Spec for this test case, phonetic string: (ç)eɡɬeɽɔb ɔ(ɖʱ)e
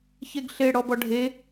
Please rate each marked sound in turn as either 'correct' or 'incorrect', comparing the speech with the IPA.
correct, correct

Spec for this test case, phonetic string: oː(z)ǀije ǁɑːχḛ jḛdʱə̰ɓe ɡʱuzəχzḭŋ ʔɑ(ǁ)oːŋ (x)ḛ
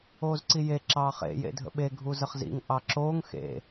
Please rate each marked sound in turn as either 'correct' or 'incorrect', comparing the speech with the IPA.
correct, correct, correct

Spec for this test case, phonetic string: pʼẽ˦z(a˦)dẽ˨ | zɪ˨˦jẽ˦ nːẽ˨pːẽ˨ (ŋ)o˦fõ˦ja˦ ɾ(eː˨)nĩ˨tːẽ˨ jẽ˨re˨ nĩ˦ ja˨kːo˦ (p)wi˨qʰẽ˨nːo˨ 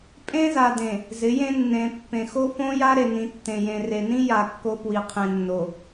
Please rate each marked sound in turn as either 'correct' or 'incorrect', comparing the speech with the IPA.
incorrect: a˨, incorrect: x, incorrect: e˨, correct

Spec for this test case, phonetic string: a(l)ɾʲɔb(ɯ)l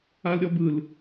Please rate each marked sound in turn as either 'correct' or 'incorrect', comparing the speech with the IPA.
correct, correct

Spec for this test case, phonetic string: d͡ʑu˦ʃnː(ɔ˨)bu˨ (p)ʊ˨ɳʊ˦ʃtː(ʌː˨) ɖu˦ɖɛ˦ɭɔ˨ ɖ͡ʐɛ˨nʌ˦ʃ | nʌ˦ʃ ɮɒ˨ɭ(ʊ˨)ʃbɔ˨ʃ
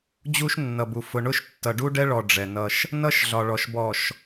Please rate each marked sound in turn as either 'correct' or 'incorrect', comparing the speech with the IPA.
incorrect: ʌ˨, incorrect: f, incorrect: ʌ˨, incorrect: ɔ˨

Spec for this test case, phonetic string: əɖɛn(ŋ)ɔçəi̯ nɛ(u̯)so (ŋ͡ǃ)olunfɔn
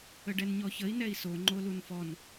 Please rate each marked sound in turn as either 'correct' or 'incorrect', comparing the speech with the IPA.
incorrect: ɲ, incorrect: i̯, correct

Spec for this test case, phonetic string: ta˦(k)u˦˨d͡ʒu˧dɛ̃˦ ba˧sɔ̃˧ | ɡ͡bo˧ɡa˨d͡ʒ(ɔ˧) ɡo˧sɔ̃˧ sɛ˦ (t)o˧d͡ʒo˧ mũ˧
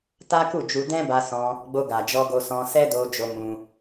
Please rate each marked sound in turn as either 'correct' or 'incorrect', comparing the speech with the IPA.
correct, correct, incorrect: d

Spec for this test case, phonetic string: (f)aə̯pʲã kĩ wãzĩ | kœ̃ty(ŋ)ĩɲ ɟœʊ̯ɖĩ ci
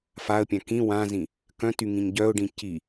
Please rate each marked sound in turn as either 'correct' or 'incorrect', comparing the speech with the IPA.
correct, correct

